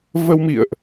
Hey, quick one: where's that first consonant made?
lips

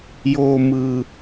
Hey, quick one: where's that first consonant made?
palate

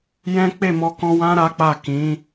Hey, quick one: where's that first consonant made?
palate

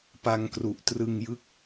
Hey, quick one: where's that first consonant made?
lips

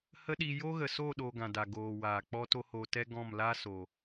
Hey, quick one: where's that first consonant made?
throat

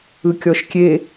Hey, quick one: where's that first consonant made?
velum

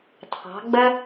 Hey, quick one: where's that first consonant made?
tongue tip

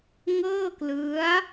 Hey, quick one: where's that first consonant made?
velum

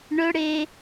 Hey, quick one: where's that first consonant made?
retroflex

